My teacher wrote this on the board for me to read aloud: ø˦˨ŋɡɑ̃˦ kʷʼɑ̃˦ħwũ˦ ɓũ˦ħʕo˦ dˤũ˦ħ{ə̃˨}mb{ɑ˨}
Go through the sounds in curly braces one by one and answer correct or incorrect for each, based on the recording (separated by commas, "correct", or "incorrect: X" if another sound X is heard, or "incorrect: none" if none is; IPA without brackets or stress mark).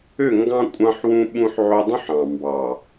incorrect: ɑ̃˨, correct